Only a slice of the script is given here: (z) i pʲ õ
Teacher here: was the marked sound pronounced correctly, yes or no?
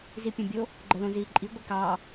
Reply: yes